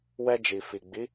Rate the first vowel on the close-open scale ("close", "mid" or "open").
mid